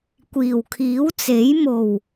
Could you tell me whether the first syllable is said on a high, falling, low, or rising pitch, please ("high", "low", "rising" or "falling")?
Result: low